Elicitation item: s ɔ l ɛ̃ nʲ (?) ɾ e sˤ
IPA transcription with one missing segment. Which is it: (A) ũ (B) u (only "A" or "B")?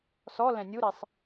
B